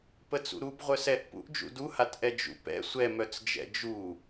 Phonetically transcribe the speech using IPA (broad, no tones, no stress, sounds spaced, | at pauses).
p ə t͡s ṵ ɾ u b ʁʷ œ s ɛ ʔ p ṵ ʔ d͡ʒ ṵ d u h a t ʔ ɛ d͡ʒ ṵ p ɛ̰ sʷ ɛ m œ t͡s d͡ʒ ɛ̰ d͡ʒ u